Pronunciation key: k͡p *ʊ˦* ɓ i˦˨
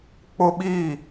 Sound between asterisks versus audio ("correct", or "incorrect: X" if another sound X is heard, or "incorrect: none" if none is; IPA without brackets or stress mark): correct